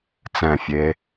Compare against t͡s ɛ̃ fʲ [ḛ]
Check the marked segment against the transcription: incorrect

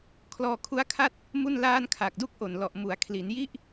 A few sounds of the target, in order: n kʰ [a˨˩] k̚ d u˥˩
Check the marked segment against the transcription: correct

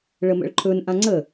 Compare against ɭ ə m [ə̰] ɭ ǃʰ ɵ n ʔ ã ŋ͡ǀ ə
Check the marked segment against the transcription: correct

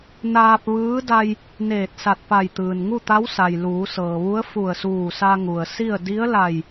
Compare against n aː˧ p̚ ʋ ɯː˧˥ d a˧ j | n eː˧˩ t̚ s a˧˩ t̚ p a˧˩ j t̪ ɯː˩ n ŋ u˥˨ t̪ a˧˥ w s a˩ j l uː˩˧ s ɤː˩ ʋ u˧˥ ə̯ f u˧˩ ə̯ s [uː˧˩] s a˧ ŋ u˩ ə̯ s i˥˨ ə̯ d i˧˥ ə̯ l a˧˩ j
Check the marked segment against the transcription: correct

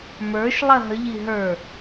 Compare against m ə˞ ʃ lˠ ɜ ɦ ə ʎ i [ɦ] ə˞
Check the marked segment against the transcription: correct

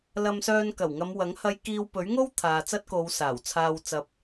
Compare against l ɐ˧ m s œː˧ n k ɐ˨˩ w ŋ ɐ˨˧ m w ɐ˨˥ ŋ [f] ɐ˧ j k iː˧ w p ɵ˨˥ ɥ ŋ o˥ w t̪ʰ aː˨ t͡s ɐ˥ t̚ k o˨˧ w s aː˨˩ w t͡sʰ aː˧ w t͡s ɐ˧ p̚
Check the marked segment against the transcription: incorrect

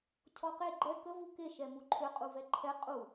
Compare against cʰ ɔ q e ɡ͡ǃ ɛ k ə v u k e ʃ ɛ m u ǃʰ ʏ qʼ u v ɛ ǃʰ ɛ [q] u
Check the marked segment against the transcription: incorrect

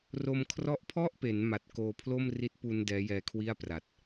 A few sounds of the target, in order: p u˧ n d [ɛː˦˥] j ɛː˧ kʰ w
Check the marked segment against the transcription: correct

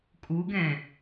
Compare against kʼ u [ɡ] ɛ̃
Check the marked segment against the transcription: correct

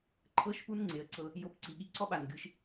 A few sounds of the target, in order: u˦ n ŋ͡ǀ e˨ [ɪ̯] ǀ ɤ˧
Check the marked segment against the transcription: incorrect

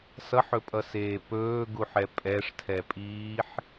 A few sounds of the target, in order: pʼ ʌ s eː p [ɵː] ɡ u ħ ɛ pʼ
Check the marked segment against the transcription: correct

